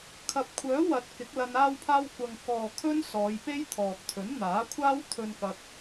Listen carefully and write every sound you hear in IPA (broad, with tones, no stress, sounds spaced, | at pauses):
kʰ ɐ˨ p̚ kʷʰ œː˨˥ w ɐ˨ t̚ k ɪ˨˥ k̚ l ɐ˧ n aː˧ w pʰ aː˧ w kʷ ɐ˧ ŋ k ɔː˨ kʰ ɵ˥ n s ɔː˨˧ j p e˥ j t̪ʰ ɔː˨ k̚ t̪ʰ ɵ˨˥ n n̪ aː˨˥ kʷʰ aː˥ w t̪ʰ ɵ˧ n k ɐ˧ k̚